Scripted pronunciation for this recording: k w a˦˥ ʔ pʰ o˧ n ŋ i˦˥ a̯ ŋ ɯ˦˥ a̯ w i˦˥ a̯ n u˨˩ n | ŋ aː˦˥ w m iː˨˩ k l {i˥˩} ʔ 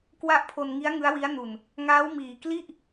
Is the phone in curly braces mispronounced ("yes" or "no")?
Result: no